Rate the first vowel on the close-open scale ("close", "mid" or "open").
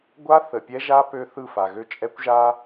open